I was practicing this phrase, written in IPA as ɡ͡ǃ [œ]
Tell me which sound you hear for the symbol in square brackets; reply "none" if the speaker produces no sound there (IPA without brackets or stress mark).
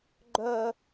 œ